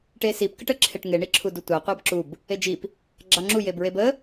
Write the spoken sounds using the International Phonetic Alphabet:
ʈ e s i p k ə ʈ ə ǁʰ e ʈ ŋ e ɳ i ǁʰ u d u tʷ ɑ qʷ ɑ b ǁ u b | e d͡ʒ i p | ɡ͡ǁ ɑ ŋ͡ǁ u j e b ɹ e b ə

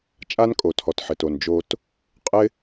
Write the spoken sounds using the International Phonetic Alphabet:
t͡ʃʼ a˦ n kʼ o˨ tʰ ɔ˨ t ħ ɪ˨ t o˨ n d͡ʒ o˧ t | qʼ ɪ˦

